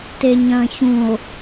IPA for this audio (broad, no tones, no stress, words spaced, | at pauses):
teɲɐ̃çũo̯